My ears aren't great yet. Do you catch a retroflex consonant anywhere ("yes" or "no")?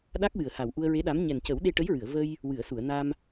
yes